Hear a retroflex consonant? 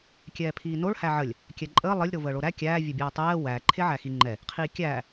yes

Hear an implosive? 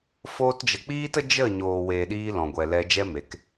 yes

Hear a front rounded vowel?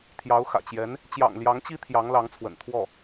no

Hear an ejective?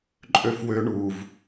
yes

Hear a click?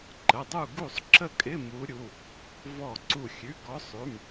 yes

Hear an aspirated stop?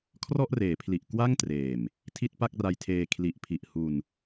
yes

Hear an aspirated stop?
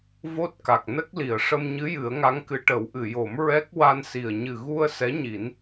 no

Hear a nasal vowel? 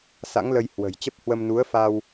no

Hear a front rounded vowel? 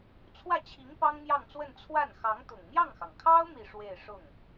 no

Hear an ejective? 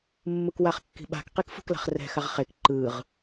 no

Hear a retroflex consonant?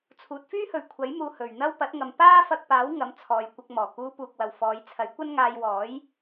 no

